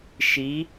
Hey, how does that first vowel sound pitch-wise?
rising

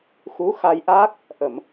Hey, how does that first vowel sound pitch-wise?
rising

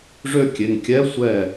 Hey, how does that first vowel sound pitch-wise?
high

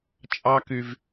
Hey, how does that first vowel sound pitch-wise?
high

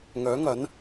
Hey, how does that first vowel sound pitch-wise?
rising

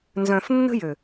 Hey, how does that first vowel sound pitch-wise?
low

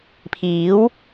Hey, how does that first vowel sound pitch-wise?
rising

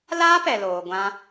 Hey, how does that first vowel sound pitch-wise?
high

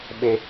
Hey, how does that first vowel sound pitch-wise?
high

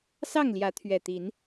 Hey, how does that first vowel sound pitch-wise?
falling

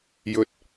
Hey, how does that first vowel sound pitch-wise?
low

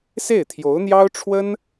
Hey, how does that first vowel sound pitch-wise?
falling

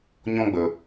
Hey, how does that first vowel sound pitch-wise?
high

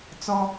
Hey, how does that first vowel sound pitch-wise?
high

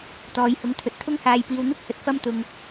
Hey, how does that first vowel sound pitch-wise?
low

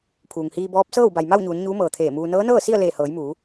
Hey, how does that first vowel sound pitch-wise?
low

